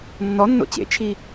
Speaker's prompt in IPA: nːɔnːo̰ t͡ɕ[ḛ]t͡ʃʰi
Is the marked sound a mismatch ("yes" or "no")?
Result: no